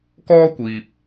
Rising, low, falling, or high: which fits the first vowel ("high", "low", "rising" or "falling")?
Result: high